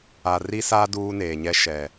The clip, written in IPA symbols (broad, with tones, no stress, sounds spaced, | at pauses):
a˨ r i˦ s aː˦ d uː˦ n eː˨ ɲ ɛ˦ ʃ ɛ˨